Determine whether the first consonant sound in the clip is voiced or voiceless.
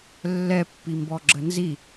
voiced